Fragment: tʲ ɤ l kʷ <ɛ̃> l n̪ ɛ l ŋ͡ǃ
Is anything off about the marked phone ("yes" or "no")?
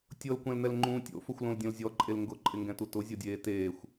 no